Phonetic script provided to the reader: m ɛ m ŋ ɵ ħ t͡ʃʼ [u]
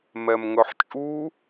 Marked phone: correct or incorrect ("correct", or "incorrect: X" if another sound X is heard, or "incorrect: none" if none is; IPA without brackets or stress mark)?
correct